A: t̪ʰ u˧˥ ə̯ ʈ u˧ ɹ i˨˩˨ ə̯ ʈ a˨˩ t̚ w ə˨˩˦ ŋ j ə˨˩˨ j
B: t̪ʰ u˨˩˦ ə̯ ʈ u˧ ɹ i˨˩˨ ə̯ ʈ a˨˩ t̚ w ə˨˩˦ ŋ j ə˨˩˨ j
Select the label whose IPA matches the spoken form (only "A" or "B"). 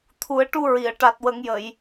B